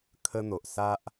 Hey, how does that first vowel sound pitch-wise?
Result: high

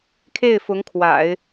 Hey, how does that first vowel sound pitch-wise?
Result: falling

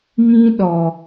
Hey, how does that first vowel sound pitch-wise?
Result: high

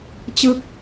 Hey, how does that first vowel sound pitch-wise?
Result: falling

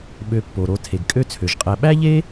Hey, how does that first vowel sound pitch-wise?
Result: low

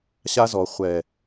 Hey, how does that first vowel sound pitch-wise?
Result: high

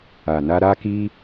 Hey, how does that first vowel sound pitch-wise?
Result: low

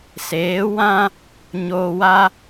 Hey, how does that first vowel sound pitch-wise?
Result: rising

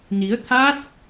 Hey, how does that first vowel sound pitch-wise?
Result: rising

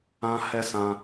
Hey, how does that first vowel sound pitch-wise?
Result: high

